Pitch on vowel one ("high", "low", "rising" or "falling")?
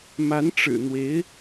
rising